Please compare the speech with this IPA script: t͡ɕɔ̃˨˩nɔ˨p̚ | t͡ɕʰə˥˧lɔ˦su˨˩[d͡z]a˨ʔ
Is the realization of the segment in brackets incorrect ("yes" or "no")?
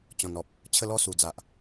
no